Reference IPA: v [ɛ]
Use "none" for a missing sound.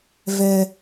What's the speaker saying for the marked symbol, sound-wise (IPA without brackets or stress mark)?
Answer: ɛ